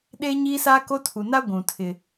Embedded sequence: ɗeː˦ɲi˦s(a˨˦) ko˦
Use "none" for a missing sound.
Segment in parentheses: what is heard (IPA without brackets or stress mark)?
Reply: a˦